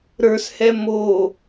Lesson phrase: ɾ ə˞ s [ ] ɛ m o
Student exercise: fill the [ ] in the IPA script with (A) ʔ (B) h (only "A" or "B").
B